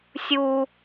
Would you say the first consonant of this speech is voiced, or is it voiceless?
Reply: voiceless